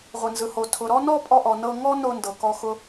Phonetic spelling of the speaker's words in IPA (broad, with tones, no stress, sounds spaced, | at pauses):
ʁʷ ɯ˨ n z ɯ˨ h o˨ tʰ ʊ˨ ɾ ɔ˦ n ɔ˦ pʼ ɔ˧ ʔ ɔ˨ n ɤ˧ ŋ ɔ˦ n o˧ n d ɤ˨ k ɔ˦ x ʊ˦